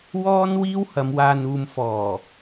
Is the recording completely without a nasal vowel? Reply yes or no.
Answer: yes